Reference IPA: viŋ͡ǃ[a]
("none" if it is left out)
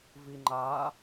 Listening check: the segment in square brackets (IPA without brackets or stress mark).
a